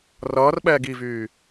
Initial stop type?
implosive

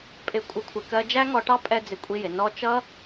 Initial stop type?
ejective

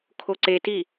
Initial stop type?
aspirated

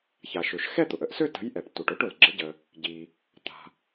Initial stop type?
plain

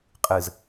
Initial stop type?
ejective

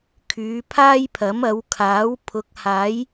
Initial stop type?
aspirated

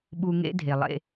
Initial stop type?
implosive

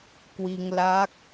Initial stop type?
plain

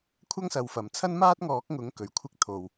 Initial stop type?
aspirated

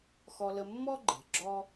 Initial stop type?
click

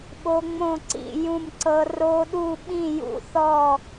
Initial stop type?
implosive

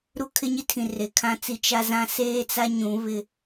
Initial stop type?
aspirated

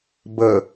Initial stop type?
plain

